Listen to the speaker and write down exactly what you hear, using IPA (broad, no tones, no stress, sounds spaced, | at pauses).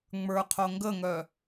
ŋ͡m ə˞ qʰ o ŋ ɡ ə ŋ œ